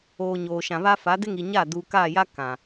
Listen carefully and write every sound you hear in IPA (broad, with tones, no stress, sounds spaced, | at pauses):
oː˨ ɲ oː˨ ʃ ã˨ β a˦ f a˨˦ d ɪ˦ ŋ i˨ ɲ a˦˨ d uː˨ k aː˦˨ j a˦ k ã˨